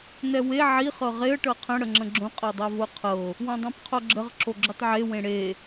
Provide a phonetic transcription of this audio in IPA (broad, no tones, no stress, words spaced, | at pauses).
nɛwe ʕi χɤʁeə̯ ʈɤqʰə̃ ɽəŋ͡ǁə̃ɡ͡ǁõ qʼɤdˤavoqʰɤ | wõdˤãpqʰoɡ͡ǁəʁ ǁoɡ͡ǁɵtˤʕe wẽɽe